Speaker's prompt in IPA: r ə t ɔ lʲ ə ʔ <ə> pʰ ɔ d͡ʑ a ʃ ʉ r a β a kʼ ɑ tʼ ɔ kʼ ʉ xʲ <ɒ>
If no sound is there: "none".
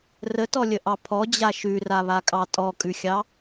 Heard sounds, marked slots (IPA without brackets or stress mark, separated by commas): ɑ, ɑ